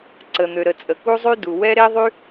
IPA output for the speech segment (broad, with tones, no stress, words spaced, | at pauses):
ǀə˩n̪ø˩ɾə˩ t͡sʼə˩ku˥zˤy˥du˩ wɛ˥ ɾe˥ðˤy˥